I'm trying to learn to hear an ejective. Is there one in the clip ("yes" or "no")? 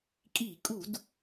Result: yes